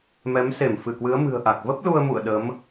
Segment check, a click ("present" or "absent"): absent